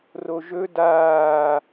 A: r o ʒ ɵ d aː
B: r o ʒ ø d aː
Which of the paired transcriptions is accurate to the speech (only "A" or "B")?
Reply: A